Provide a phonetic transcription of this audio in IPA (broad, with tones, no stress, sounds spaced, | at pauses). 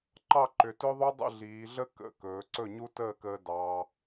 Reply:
ǃ ɑ˥˩ ǃ ʏ˩˧ t ɵ˦˥ ðˤ u˦˥ dˤ ə̰˥˩ ɮ iː˩˧ ɮ ə˦˥ k ə̰˩˧˩ k ɵː˩˧ ǀ ɵ˥˩ ɲ u˦˥ t əː˥˩ k əː˧ d ɑ˦˥